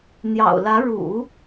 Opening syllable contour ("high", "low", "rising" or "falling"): low